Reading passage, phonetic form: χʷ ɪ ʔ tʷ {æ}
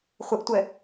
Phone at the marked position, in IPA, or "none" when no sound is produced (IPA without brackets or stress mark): ɛ